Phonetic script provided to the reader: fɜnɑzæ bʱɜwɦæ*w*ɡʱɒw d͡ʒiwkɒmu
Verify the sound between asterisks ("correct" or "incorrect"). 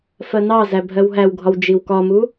correct